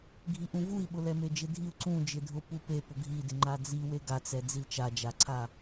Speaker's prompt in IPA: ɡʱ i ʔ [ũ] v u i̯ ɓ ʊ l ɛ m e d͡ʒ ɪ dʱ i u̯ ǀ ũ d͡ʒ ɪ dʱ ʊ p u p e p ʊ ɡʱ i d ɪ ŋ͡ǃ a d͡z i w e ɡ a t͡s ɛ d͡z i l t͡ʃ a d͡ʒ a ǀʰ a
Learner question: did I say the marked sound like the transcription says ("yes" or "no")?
yes